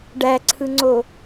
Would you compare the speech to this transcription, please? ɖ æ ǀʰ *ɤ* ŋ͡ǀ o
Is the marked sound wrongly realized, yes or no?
yes